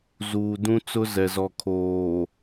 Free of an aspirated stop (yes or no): no